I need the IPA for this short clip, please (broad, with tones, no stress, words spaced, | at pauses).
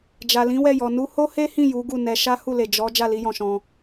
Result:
d͡ʒa˨lĩ˨˦wɛ˦˨jɔ˨ nu˧ho˦he˦hĩ˦˨ ju˨˦ɡu˦˨nɛ˧ ʃa˦hu˦˨le˨ d͡ʒɔ˨˦ d͡ʒa˦˨li˧jɔ̃˨ ʃɔ̃˧